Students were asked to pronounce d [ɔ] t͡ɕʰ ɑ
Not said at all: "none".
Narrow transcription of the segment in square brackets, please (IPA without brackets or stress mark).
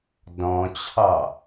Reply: ɔ̃